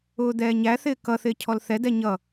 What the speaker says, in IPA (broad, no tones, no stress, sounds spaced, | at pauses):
ʊː d̪ ɛː ɲ æ θ ɪː k ʌ θ ɪː cʰ ɔ l θ ɛ d ɛ ɲ ʌ